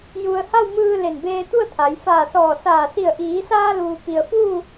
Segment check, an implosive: absent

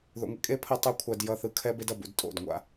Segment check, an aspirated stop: present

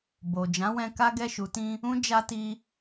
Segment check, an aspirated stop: absent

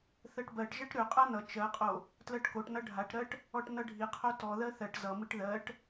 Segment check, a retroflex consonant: present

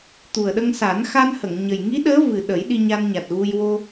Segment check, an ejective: absent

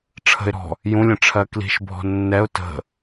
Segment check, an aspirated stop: present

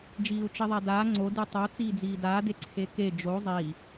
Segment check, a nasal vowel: absent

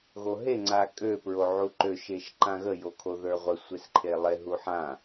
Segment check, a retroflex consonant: absent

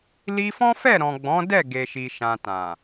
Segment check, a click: absent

